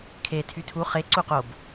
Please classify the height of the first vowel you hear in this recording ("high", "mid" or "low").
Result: mid